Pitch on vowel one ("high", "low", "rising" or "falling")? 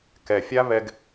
low